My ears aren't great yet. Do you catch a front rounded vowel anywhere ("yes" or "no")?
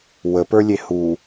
no